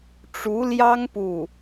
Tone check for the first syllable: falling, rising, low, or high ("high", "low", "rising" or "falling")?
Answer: rising